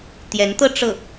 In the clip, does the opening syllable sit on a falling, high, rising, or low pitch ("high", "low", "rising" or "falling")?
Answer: rising